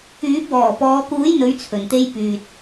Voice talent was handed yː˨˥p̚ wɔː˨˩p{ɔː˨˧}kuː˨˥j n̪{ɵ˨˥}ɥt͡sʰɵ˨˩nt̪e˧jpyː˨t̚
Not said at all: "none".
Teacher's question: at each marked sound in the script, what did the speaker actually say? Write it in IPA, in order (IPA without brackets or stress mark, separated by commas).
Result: ɔː˨˧, ɵ˨˥